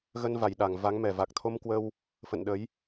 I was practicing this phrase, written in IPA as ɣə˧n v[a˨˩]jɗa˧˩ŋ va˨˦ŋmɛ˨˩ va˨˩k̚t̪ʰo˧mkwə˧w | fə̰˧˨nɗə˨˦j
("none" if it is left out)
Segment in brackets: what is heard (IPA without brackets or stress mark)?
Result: a˨˩